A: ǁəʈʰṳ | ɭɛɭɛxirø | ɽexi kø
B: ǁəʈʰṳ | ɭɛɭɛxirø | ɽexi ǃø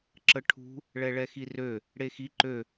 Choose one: B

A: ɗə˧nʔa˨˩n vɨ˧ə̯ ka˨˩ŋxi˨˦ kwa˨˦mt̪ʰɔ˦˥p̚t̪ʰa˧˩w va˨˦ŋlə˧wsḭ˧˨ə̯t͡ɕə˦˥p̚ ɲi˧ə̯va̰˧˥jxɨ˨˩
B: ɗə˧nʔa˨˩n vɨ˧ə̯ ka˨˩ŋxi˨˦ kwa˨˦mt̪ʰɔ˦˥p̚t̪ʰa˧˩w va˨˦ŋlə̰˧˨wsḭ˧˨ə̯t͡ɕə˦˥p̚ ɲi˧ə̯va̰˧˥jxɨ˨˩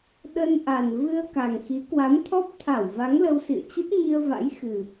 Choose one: A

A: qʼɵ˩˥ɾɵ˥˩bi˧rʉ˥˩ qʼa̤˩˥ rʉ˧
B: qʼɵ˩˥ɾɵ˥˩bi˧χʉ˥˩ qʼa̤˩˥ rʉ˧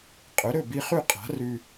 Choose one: B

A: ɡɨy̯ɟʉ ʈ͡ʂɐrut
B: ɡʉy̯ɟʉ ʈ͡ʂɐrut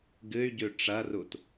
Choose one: A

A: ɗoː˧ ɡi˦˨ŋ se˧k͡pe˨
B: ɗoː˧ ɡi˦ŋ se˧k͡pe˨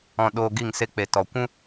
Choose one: A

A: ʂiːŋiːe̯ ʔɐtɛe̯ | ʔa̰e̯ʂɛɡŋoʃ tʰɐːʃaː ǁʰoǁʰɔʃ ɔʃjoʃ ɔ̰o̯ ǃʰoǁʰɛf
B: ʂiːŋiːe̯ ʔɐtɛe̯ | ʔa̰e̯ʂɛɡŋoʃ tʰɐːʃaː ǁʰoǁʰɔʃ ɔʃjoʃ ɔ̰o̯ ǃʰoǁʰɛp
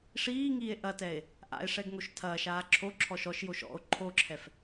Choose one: A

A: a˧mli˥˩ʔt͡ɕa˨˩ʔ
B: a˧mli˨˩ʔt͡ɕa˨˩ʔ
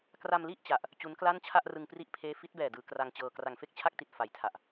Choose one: A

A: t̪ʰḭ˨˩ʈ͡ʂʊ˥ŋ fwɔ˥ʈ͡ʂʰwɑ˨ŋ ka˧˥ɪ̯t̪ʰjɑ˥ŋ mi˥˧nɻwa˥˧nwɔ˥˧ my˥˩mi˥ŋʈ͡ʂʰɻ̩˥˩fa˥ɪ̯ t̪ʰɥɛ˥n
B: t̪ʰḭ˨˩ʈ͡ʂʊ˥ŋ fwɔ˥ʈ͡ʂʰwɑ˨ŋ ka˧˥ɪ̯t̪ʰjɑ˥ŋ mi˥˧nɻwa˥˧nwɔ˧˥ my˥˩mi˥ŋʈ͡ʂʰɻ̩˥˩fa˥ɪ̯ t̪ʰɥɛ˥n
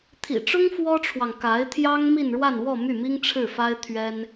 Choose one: A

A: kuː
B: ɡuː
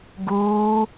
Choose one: B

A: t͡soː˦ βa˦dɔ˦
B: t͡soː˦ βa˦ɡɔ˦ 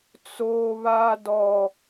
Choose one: A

